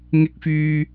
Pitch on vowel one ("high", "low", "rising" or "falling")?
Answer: rising